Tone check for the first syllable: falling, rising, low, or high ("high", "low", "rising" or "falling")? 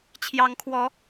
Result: rising